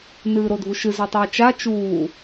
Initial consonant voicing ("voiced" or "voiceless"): voiced